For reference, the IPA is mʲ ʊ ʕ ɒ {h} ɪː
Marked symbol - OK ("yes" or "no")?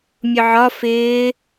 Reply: no